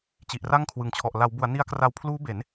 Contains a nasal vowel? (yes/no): no